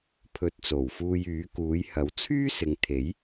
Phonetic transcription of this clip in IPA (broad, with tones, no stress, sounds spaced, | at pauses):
pʰ ɵ˨˥ t̚ t͡s o˨˩ w f uː˧ j yː˨˥ k uː˨˥ j h ɐ˨˥ w t͡sʰ yː˥ s ɪ˨ ŋ t̪ʰ e˨˥ j